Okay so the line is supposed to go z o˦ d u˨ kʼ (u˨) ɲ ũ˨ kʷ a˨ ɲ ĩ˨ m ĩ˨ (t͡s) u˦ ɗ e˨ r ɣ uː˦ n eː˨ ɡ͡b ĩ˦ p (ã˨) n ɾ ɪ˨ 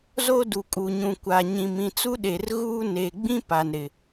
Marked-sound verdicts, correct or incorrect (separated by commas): correct, correct, incorrect